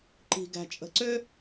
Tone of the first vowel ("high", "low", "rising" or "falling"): low